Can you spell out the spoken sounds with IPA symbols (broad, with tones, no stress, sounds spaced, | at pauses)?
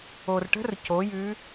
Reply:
o˩ r ʈ ə̤˦˥ r c o˩˧ j ʉ˨˥